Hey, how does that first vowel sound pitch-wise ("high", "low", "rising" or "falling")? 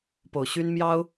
low